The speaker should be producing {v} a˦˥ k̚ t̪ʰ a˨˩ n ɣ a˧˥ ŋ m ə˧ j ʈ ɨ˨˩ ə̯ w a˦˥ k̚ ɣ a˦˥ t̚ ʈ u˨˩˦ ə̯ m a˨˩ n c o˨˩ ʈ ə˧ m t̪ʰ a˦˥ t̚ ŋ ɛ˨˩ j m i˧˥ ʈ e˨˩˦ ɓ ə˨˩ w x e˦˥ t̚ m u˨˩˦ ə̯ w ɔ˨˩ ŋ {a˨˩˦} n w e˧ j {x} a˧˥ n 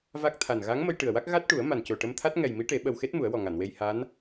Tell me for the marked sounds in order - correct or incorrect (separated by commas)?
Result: correct, incorrect, incorrect